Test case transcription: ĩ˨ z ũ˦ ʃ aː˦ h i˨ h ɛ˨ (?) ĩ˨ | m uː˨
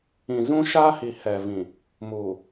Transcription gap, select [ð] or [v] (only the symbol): v